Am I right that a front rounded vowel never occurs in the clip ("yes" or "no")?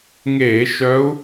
no